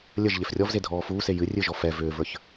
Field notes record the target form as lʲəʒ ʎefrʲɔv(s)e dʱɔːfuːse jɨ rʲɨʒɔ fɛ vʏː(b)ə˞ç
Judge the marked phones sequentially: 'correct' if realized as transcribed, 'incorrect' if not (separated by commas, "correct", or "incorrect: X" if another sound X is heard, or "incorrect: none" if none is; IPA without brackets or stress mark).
incorrect: z, incorrect: v